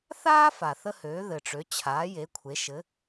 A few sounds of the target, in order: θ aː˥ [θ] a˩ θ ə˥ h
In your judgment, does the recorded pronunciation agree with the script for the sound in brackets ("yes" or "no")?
no